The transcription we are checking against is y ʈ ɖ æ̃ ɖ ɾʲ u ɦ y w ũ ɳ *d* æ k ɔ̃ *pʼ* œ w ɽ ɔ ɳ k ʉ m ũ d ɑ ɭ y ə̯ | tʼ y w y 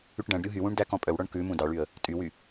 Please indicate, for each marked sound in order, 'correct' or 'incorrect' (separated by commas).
correct, correct